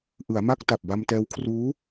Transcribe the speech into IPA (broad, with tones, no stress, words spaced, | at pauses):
ʔɯ˩˦a̯ma˥˩k̚ ta˨˩p̚ba˧mtɛː˧wkʰruː˦˥